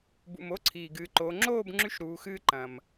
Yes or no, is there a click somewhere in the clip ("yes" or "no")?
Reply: yes